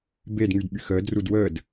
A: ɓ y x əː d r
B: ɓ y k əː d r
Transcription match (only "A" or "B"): A